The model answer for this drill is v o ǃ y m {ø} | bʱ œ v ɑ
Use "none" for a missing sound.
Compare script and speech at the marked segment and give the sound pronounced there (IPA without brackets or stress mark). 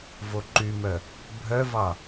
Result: œ